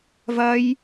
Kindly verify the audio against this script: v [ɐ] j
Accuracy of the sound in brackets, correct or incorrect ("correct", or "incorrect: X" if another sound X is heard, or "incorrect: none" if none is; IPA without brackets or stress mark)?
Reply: correct